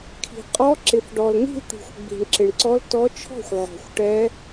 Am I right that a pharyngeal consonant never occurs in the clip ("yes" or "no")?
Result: no